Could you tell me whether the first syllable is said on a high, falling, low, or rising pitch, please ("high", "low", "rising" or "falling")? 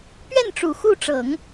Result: falling